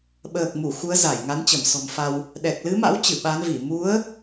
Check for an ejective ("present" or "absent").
absent